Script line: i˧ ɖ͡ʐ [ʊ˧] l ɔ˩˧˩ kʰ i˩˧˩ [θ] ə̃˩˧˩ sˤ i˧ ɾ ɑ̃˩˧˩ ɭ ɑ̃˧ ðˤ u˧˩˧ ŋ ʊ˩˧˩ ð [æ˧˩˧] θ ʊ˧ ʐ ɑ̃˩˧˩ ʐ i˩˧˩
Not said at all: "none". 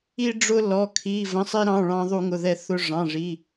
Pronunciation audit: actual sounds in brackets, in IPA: ʊ˧, v, ɛ˧˩˧

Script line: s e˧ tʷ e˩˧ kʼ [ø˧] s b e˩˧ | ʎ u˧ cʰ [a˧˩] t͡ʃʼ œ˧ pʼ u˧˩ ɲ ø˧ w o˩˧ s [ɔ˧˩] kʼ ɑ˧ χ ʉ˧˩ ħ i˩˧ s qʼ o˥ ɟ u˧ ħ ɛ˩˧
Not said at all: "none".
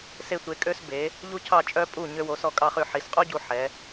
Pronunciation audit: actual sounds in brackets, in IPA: ø˧, ɑ˧˩, ɔ˧˩

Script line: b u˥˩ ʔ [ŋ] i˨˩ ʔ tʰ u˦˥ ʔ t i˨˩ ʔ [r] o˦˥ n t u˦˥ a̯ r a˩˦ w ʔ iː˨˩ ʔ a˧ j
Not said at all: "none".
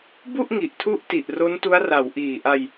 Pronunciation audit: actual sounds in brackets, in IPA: ŋ, r

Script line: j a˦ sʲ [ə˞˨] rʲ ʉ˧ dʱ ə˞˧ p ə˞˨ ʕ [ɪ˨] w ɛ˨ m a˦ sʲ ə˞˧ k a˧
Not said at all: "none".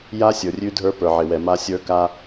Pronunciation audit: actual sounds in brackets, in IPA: ə˞˨, ɪ˨

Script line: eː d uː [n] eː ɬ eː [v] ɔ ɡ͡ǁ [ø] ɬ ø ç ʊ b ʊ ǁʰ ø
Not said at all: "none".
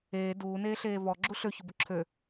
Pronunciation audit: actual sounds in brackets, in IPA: n, v, u

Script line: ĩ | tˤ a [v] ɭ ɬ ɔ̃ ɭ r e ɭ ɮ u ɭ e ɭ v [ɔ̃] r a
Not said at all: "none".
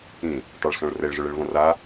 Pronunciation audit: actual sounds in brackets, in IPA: none, ɔ̃

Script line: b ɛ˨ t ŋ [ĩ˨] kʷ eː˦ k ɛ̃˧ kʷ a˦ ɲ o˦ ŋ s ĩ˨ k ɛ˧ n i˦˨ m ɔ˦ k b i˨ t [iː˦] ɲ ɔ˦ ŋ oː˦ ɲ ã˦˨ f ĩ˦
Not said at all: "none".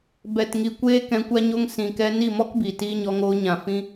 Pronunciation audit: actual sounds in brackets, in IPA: i˨, iː˦

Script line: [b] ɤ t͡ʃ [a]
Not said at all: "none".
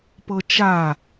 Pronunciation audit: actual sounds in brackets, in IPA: p, a

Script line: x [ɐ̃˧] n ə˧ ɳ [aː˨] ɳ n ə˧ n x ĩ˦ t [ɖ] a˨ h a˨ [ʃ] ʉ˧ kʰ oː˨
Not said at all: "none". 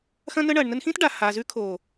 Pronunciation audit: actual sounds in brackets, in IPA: ɐ̃˧, ɐː˨, ɖ, z

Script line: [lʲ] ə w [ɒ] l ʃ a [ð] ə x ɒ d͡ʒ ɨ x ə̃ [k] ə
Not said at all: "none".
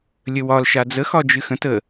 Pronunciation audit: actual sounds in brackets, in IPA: lʲ, ɒ, d͡z, t

